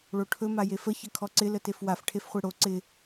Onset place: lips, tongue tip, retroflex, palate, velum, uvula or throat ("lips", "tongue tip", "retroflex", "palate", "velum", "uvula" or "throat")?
retroflex